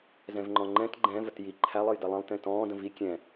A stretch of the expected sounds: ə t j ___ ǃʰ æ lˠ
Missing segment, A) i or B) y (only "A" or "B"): A